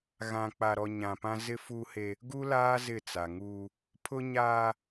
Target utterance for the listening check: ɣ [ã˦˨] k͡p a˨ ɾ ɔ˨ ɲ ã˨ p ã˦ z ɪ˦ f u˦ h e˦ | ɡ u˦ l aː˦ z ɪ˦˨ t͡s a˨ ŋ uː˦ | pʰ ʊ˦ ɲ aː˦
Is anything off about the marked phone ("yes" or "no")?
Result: yes